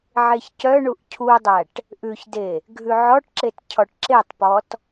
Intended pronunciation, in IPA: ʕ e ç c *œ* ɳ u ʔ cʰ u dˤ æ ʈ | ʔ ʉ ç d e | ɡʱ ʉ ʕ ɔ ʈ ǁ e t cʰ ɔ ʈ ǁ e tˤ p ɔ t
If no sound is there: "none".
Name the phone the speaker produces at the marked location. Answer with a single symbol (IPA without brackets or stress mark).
œ